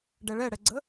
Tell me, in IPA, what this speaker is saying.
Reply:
ɖɛɭɛɽɛɡ͡ǀə

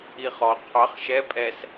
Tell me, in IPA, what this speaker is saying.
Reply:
iχɔ qʰɑχ ʃɛ pʼɛs

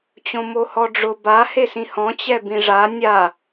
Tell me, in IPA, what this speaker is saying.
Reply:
t͡ɕõmohɔɖ͡ʐʊ ba hesĩhɔ̃ t͡ɕɛbĩʐa nʲa

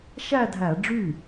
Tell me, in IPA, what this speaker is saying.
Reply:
ʃæ˥˧dʱæ˧˩˧ɖ͡ʐy˥˩

